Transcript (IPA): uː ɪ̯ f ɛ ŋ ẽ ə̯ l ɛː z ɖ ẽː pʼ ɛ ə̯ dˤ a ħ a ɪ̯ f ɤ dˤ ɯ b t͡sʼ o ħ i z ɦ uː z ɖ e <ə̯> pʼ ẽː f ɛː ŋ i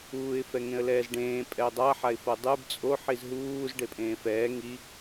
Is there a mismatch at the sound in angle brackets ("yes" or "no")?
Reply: yes